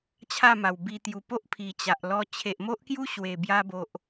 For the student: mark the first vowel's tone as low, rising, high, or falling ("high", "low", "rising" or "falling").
falling